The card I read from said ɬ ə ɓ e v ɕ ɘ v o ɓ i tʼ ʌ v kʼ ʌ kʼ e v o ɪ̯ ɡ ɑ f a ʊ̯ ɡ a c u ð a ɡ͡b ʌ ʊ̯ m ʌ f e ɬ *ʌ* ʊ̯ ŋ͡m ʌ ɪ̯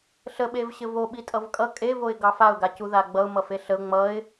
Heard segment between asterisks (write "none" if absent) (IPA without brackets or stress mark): ə